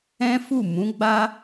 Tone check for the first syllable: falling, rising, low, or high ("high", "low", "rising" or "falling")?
high